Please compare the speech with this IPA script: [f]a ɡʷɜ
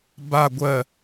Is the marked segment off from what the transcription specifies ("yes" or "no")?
yes